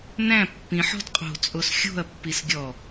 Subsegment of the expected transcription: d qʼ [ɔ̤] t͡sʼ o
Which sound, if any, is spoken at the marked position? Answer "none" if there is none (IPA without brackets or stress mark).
o̤